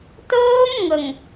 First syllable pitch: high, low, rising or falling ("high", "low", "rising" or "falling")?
high